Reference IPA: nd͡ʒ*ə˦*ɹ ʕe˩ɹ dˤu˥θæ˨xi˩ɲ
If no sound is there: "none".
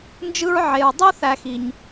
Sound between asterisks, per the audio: ɯ˦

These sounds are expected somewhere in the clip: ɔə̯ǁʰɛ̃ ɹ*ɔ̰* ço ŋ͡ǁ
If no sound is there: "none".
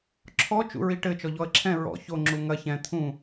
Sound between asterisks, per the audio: ɔ̰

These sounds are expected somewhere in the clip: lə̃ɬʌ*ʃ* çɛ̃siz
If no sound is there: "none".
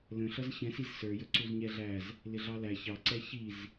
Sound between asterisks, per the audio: z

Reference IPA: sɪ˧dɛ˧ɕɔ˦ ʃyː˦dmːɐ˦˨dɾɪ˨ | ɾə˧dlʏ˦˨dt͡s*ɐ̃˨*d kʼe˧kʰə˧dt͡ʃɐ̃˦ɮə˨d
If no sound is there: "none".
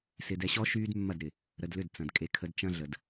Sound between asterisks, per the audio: ɐ̃˨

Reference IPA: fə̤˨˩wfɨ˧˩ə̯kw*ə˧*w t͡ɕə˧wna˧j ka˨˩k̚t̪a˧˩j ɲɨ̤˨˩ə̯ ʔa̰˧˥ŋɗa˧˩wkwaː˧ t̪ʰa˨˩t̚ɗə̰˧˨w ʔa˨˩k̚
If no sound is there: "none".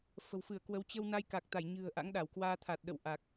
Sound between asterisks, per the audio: ə˨˦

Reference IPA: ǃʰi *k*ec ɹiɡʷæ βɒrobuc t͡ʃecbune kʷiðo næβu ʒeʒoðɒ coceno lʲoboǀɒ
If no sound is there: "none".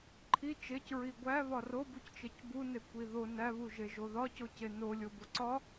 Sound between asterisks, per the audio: t͡ʃ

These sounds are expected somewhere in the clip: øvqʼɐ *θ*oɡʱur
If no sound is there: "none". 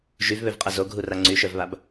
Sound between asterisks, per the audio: z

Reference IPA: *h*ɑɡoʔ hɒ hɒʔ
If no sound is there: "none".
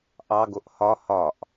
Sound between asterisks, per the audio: ʔ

